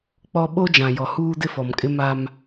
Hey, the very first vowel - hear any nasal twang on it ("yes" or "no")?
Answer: no